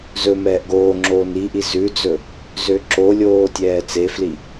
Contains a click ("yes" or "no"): yes